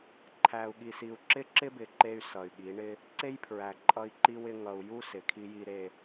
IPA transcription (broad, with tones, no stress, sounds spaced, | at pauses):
ǃʰ æ˨ u̯ ɠ i˨ s i˨ u̯ ǁ ɪ˦ ǁ ɪ˦ b ɪ˨ ǃ e˦ y̯ s ʌ˨ y̯ ɠ i˨˦ ɳ ɪ˦ | ǀ e˦ j pʰ ɹ æ˨ ǃʼ ʌ˦ i̯ ǃ i˦ w ɪ˦ ŋ ʌ˨ u̯ j u˦ s ɪ˨ kʰ i˦ j i˦ ɾ e˦